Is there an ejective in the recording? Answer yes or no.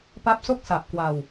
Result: no